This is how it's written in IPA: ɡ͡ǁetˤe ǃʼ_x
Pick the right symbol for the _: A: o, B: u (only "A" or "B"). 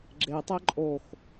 A